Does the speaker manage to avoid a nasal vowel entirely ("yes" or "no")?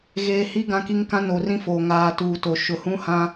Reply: no